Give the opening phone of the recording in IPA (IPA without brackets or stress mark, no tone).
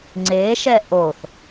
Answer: ŋ͡ǀ